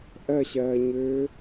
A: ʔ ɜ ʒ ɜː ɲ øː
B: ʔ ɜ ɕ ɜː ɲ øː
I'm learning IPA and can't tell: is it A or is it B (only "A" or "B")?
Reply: B